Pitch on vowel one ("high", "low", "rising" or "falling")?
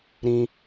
low